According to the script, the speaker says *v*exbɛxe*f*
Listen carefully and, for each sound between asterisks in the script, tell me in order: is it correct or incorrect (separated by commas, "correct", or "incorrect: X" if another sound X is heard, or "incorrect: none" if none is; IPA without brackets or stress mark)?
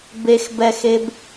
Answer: incorrect: b, incorrect: b